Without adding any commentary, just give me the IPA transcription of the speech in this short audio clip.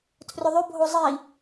tʰrʏðˤʏbʱo zˤi

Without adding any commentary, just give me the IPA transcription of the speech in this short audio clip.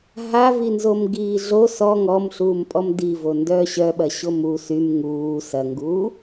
ɦavinzom ɡiːɮo sɔ ŋɔmɬuːmpʼɔm divo ndœːɕœɓɐ ɕomu sym ŋuː sɐŋɡuː

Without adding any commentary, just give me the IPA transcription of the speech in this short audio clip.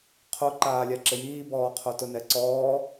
qʰo ǃaːlʲaǁɪjiː bɔːqʰotʊ nɛǀɔː

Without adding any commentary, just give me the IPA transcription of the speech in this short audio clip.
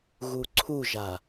ɣuǀʰuʒa

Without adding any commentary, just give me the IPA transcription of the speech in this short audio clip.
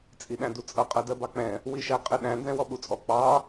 t͡sʼiɗæ̃dut͡sʼʌ qʼɜdɜbɑk͡pɛ̃ | wiʃæqʼɪɗæ̃ nzɛ̃wɔɓut͡sʼɔ k͡pɑ

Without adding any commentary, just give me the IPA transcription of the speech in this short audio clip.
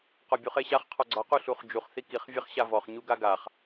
qɒbʲuχeɕaχ qʰɒɡ͡ǀɒ quɬuχd͡ʒuχ θikiχ vʲeχɕavɔχ ɲuɡaɡaχ

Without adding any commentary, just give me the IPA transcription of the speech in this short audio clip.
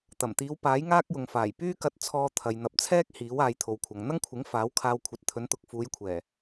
t̪ɐ˨˩mt̪iː˨˧w paː˨˥jŋaː˥k̚jʊ˨ŋ faː˨˩j pyː˥kɐ˧t̚t͡sʰɔː˧ t̪ʰɐ˨j n̪ɐ˨p̚t͡sʰɛː˥k̚ hiː˨˥w aː˨˧jt̪ʰo˨wkʷʰɐ˨ŋ n̪ɐ˥ŋkʷʰɪ˨˥ŋ faː˨˥w kʰaː˧wkʷʰɐ˨˥t̚ t̪ʰɵ˨˥nt̪ʊ˨k̚ fuː˨˧jkʷʰɛː˨˩

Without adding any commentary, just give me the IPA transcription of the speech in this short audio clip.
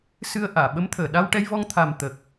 sɨ˧ə̯ʔaː˨˩˨ ɓə˧˥mt̪ʰəː˨˩˨ ɗa˧wʈɛ˧jvɔ˧ŋ t̪ʰa˨˩m t̪ə˨˩k̚

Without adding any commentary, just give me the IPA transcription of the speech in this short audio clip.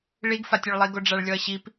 ɭiɡfatʲoɭlˠi ɡoɖ͡ʐaɭlʲɔɐ̯ɕip

